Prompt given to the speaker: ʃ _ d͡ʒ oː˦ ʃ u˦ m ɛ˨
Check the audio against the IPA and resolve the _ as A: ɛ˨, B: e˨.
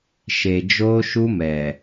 B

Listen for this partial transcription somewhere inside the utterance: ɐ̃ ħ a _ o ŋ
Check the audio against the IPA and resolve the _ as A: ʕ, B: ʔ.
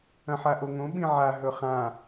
B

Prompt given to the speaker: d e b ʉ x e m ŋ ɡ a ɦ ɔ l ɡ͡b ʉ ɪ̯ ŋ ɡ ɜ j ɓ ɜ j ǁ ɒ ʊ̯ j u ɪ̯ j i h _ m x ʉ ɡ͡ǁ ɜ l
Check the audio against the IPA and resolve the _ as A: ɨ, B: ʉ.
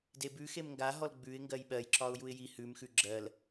B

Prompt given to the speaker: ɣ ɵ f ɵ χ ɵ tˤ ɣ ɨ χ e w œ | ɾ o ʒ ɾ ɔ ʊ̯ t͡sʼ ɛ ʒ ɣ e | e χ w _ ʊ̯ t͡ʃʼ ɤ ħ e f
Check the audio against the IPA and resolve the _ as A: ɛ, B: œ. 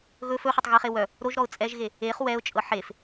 A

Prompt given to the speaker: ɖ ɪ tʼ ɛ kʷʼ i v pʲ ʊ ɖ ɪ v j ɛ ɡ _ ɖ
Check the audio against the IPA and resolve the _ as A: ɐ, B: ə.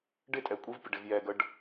B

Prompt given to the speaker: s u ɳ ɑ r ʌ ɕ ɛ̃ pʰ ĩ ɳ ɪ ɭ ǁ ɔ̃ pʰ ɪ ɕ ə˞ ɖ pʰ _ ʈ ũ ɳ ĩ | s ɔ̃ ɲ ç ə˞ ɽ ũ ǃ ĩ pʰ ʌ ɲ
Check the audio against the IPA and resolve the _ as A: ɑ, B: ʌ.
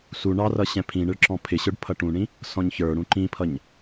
B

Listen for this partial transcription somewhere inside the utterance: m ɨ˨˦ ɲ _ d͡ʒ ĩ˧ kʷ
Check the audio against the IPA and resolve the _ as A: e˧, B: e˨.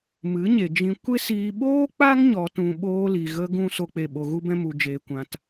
B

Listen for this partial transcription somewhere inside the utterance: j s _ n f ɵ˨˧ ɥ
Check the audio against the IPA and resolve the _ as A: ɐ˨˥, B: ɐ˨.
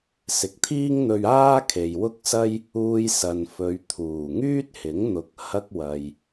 B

